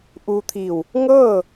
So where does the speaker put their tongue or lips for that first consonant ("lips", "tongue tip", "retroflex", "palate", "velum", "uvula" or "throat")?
throat